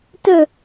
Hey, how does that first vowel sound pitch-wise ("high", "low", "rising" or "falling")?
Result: low